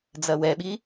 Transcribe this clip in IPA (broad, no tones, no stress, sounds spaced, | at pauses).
d͡z ɐ w ɛ ɓ i